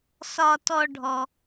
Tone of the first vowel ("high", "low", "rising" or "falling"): high